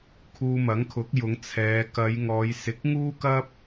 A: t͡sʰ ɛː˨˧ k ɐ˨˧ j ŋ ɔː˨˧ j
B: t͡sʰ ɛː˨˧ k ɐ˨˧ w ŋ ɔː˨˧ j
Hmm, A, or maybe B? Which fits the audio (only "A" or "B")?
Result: A